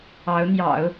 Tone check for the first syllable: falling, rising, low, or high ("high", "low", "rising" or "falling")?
rising